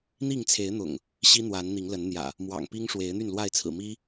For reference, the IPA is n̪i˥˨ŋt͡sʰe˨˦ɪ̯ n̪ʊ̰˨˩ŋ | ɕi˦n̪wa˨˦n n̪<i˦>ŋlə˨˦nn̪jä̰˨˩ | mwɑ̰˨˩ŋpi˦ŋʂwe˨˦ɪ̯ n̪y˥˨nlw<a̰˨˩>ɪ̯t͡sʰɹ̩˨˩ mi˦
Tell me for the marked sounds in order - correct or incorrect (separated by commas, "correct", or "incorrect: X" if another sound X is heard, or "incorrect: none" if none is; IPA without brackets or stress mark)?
incorrect: i˨˦, incorrect: a˥˨